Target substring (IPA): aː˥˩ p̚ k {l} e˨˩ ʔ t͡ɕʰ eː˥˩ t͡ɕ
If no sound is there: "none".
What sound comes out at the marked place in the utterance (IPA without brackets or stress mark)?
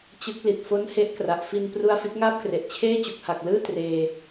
r